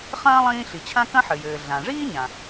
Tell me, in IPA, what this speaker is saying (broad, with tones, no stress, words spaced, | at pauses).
χɐ̃ː˥ lˠĩː˥ɬi˩ t͡ɕʰã˥kɐ̃˥ħɘ˩jɘː˩ ɮã˩ʐiː˥ɲã˩